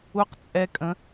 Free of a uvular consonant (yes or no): no